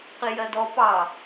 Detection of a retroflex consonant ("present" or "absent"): absent